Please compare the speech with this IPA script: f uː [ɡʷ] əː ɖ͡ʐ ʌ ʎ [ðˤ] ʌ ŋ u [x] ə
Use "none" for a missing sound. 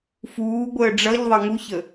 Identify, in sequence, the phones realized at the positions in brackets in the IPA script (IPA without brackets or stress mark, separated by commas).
ɡʷ, ðˤ, ç